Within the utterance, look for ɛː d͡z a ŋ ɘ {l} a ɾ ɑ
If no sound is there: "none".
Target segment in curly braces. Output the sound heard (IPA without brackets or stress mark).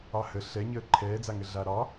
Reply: ɮ